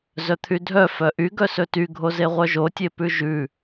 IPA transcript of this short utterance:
z œ t̪ʰ y dʱ œ f œ ʔ y ɡ œ s ɵ t y ɡʱ o z e ʁʷ œ ʒ o tʲ e p ʉ ʒ ʉ

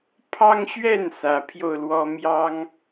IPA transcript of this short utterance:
pʰ ɑ˦ ŋ ɕ ɥ ɛ˥˨ n s ä˨˦ pʰ j o˧ ʊ̯ l w ɔ˦ m j ɑ˦ ŋ

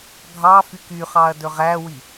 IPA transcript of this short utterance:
ɡʱ ɑ f y k y χ ɑ ɐ̯ d ɵ ʁ æ w i

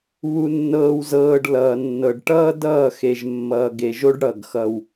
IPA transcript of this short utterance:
β u˨ nː ɤː˨ w z ɤː˨ ɖ l ʌː˨ nː ɤ˨ ɖ ʈ ʌː˦ d ʌː˦˨ x e˨ ʒ mː ʌː˨ ɡ e˨ ʒ o˦ ɖ ɽ ʌ˦˨ ɡ x ʌ˦ w

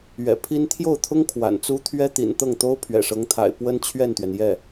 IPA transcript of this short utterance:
ɥ ɛ̰˨˩ pʰ i˥ n t̪ʰ j o˥˩ ʊ̯ t̪ʰ ʊ˥ ŋ kʰ w a̰˨˩ n t͡s u˥ t̪ʰ ɥ ɛ˥ t̪ ḭ˨˩ n t̪ ɤ˥˩ ŋ t̪ o˥ ʊ̯ pʰ ɥ ɛ̰˨˩ ʂ ɤ˧˥ ŋ t̪ʰ a̰˨˩ ɪ̯ p w ə˥ n t͡ɕʰ ɥ ɛ˥˩ n t̪ ɥ ɛ˩ n j ɛ˥˩

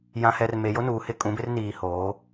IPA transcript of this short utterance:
j ã˨ h ɛ˨ r m e˨ j o˦ n uː˨ h ɪ˦˨ kʼ ũ˨˦ b ɪ˦ r n iː˨ h oː˨˦

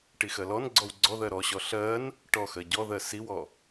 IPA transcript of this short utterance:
ʈ i x ɜ l ɔ n ɡ͡ǀ ɔ w ɡ͡ǀ ɔ ð ɜ ɾ ɔ ɕ ɔ ɬ ɜ n | ʈ ɔ x ɜ ɟ ɔ ð ɜ s i w ɔ

